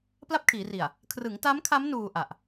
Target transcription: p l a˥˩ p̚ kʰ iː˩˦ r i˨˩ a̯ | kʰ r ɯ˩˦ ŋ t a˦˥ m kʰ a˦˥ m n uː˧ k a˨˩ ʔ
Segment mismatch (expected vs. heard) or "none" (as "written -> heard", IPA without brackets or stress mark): k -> ʔ